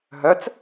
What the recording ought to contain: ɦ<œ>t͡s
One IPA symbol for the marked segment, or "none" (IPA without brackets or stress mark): œ